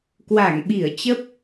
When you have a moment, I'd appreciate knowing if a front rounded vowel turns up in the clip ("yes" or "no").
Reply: no